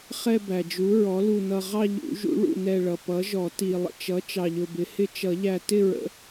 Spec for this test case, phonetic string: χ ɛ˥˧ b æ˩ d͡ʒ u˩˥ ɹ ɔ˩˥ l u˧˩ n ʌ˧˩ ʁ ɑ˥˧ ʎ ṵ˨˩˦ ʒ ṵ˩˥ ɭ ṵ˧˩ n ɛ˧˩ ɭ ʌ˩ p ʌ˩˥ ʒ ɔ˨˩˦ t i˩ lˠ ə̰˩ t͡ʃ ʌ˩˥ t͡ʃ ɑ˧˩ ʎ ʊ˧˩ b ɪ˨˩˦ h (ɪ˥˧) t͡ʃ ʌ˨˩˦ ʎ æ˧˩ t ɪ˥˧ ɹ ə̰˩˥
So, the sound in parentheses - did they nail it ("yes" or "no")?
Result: yes